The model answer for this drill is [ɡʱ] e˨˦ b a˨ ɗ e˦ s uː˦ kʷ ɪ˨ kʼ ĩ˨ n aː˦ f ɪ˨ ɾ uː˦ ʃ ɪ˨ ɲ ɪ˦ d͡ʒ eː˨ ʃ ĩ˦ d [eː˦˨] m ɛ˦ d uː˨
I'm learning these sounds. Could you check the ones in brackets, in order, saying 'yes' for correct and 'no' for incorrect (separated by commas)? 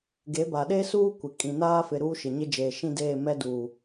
no, yes